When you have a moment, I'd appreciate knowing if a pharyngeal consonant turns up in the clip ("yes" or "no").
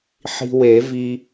yes